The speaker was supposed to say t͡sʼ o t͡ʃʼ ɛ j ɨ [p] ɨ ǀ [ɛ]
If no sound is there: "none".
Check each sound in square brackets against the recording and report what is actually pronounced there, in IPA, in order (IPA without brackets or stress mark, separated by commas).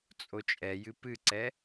p, ɛ